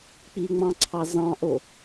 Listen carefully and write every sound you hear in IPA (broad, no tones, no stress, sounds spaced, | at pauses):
k͡p i ŋ͡m ɑ̃ ǀʰ ɑ z ɑ̃ ʔ o